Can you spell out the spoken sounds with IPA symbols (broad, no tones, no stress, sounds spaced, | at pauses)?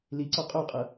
l i ǀ ɔ qʼ o qʼ ɤ